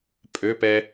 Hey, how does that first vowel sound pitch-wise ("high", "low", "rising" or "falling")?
rising